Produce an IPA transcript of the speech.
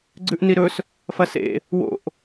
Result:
ɡ͡ǀʉʔniɾɵs | fɐsḛ | wo̰ʔ

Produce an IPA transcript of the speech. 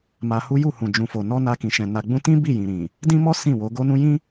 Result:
ma˧hu˦ ju˦˨hũ˨ d͡ʒũ˨fo˨ nɔ˧ na˧kĩ˨ʃɛ̃˨ na˨ɡ͡bũ˧tĩ˦ bi˦˨jĩ˨ɾĩ˨ | dĩ˦mɔ˦ sĩ˦˨wo˨˦ ɡo˦nũ˦ jĩ˦

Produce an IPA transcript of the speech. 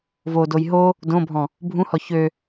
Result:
vodoj ɦo | dõbʱɔ̃ | bʱũhɔ çø

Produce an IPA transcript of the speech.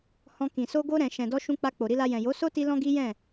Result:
hɔ̃˧kĩ˨ so˧ ɡo˧ɾɛ̃˨ ʃɛ̃˨dɔ˧ʃũ˧ k͡pa˧k͡po˨ɾi˧la˧ jɛ̃˨jo˨˦so˦ ti˦lɔ̃˦ɡi˦jɛ̃˦˨

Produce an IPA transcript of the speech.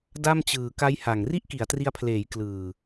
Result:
da˥˩mt͡ɕɯː˨˩ ka˦˥jha˨˩ŋ ri˥˩ʔki˩˦a̯tri˧a̯pʰleː˩˦j klɯː˨˩

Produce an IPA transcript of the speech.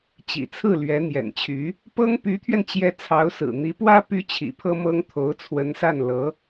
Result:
t͡ɕḭ˨˩t͡sʰɹ̩˥˩ lɥɛ˧˥ n̪jɛ̰˨˩nt͡ɕʰy˧˥ | pɤ˥ŋ py˧˥t̪ʰɥɛ˧nt͡ɕjɛ˧˥ t͡sʰɑ˧˥ʊ̯sɹ̩˨˩n̪i˧˥pwä˥ py˥t͡ɕʰḭ˨˩pʰɤ˥mɤ˥ŋ t̪ʰo˧˥ʊ̯t͡sʰwə˧˥nsa˥˩n lɤ˧˥

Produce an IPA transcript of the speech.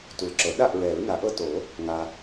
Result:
tu˨lǁɤ˨˩˦ ɗa˥˨ʔ ɹɛ˨˩˦ɹna˨˩˦ʔɤ˦to˨˩˦ | ŋa˨

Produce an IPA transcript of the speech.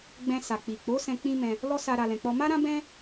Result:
ɡ͡bɛ̃˧ sa˨k͡pi˨k͡po˨˦ sɛ̃˧k͡pĩ˦ mɛ̃˦ | lɔ˦sa˧ ɾa˧lɛ̃˧k͡pɔ˦ ma˦ɾã˦bɛ̃˦

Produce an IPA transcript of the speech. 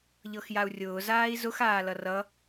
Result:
ʎɤxjau̯rʲʊː zaːi̯zʊx aːlʌrʌ

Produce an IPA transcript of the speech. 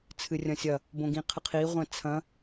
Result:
t͡sʰɨrʲɐ̃sʲɐ | bõɡĩqʰɨqʰi ʁʷɛ̃t͡sʰɐ̃

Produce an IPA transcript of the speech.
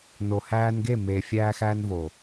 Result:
no˨hæː˧nɡe˦˨meː˨ fʲæː˧xæː˧n vo˨

